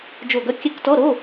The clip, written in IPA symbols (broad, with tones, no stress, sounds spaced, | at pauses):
d͡ʒ o˧˩ ɡ œ˧ kʲ ɛ˧˥˧ k t ɔ˧˥˧ ɾ o˧˥˧